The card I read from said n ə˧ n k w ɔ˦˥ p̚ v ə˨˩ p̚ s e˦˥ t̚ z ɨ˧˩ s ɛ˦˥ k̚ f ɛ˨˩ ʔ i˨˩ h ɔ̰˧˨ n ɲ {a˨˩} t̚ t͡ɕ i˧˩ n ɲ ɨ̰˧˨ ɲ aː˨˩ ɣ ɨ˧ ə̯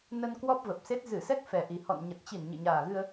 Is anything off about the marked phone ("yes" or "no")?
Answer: yes